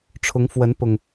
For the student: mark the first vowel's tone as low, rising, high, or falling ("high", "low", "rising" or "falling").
rising